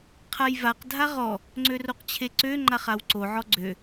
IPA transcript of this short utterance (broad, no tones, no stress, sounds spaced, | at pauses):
qʰ a j v a q dʱ a ʁ ɔ | ŋ͡ǀ ø r o q t͡ɕʰ e ǀ ø ŋ͡ǃ a χ a w ǀ o ʕ ɔ ɡ͡ǀ ø